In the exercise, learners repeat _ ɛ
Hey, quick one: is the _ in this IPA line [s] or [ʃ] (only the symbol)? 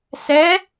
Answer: s